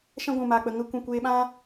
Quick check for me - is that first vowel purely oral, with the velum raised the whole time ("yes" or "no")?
no